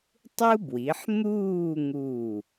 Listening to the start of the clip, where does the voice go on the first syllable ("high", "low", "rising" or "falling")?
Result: high